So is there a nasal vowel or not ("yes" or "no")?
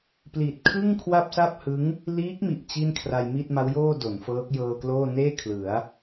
no